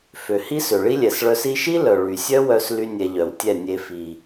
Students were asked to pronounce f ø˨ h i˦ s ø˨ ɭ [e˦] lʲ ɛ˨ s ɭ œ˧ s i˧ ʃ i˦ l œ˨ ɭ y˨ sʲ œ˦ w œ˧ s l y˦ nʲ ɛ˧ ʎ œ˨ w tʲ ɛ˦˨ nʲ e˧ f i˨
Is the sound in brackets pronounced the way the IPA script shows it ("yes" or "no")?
no